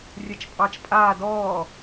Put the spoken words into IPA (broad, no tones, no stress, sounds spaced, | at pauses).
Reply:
rʲ ɛ t͡ʃ pʼ ɑ t͡ʃ pʼ aː d ɔː